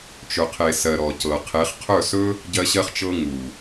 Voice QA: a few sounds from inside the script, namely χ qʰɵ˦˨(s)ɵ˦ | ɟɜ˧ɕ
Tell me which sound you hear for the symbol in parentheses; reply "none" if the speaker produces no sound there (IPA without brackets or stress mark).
s